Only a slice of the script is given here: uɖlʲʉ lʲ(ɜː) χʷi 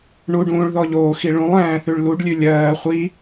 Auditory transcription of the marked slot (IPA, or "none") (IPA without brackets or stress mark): ɜː